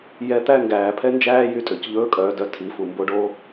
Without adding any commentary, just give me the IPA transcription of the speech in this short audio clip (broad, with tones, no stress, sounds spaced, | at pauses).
j ɛ˧˥ t̪ æ˥ ŋ ɡ æː˩˧ pʰ ɛ˥ n d͡ʒ æː˥ j y˧ tʼ ø˩ c ʎ ɵː˧˥ kʼ œː˩˧ d œ˧ tʰ i˩˧ f u˩ m b o˧˥ ɖ o˧˥